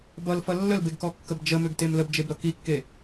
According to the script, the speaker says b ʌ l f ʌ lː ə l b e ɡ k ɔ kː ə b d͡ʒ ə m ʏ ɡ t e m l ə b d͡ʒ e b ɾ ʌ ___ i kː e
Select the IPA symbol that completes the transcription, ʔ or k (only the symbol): k